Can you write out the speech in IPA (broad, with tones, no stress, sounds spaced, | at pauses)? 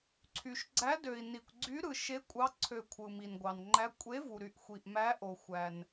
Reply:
ǀʰ y˨ ʃ ɡ͡ǀ æ˧˥ d ø˨ i̯ n i˨ kʷ ɡ͡ǀ y˧˥ ɾ ɯ˨ ʃ e˧˥ kʷʼ ɑ˧˥ ǀʰ ø˨ kʷʰ ɯ˨ m i˨ n ɡʷ ɑ˨ n ŋ͡ǃ æ˧˥ kʷʼ e˧˥ v u˨ ɾ y˨ ʔ xʷ i˨ ʔ m æ˧˥ ʔ o˨ xʷ æ˨ n